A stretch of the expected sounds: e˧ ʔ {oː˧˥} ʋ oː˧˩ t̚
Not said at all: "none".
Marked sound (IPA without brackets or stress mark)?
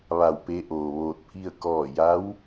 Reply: oː˩